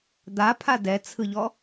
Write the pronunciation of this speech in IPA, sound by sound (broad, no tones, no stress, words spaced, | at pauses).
d̪apʰa dɛt͡sʰɯʎɔ